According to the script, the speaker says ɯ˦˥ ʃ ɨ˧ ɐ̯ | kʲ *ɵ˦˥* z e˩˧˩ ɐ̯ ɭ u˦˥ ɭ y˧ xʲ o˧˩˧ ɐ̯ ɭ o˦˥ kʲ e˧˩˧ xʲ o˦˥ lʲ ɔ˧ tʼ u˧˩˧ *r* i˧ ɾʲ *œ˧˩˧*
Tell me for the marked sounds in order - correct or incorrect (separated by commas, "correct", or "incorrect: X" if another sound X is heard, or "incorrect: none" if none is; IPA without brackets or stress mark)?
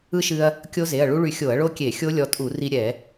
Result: incorrect: o˦˥, correct, incorrect: ɛ˧˩˧